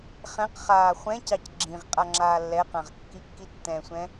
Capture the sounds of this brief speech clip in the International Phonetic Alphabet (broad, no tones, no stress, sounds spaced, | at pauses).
χ ɛ̃ q χ aː χʷ ɛ̃ c ɑ c ɡ͡ǁ ĩ ʁ qʼ a ŋ͡ǁ aː lː ɛ q ã ʁ kː i kː i tː ɛ̃ sʷ ɛ̃